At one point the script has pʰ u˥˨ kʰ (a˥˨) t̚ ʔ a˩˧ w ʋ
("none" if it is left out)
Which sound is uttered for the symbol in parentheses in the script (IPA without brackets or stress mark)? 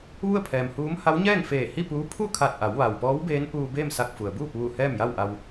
a˧˩